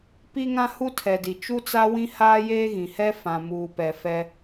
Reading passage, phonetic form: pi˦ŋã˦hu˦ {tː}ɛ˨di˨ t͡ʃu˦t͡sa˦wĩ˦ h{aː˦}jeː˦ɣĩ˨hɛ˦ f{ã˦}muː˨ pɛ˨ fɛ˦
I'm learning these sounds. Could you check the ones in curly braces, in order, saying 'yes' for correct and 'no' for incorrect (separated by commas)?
no, yes, no